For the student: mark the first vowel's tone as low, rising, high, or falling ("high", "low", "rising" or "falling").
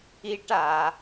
high